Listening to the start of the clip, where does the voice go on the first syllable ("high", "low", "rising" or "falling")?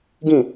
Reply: falling